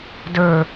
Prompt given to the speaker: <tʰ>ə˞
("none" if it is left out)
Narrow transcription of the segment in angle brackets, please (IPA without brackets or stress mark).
d